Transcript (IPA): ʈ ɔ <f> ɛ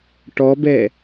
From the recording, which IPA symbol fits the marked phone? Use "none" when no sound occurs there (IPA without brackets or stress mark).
b